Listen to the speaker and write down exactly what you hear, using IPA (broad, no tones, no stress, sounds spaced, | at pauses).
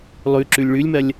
lˠ ʉ ǁ ʉ lʲ ɭ ʉ lʲ m ɐ lʲ